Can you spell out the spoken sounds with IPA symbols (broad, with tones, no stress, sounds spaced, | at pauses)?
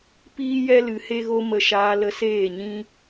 p iː˧ j ɛ˧ l ɨ˨ h e˧ ɣ o˧ m ə˦˨ ʃ aː˦ l ə˧ s eː˦˨ ɲ ĩ˦